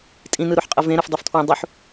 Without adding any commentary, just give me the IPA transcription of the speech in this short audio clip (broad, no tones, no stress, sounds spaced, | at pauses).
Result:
tʼ ĩ n ɯ ɾ u ħ qʼ ʌ v ẽ ɾ ɯ f dˤ u f tʰ w ũ dˤ u ħ